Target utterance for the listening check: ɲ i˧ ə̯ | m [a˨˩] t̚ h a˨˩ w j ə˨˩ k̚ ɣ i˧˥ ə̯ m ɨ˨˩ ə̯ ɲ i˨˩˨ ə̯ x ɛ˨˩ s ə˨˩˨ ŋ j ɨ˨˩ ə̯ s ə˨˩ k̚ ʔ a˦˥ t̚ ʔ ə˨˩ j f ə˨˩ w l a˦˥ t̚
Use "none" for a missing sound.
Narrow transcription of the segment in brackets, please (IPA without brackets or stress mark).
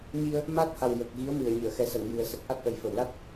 a˦˥